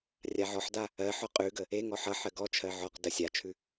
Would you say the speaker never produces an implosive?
yes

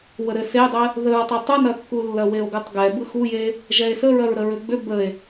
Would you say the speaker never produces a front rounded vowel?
no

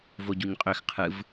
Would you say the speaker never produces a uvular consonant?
no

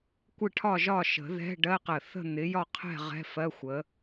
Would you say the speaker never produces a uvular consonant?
no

